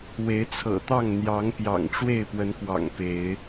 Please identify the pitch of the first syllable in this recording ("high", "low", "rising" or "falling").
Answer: rising